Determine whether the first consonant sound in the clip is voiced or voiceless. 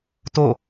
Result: voiceless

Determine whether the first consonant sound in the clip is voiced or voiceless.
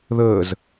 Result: voiced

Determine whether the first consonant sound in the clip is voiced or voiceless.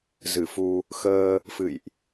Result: voiced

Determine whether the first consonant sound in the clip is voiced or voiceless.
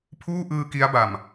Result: voiceless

